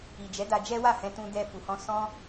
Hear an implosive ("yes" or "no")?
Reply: no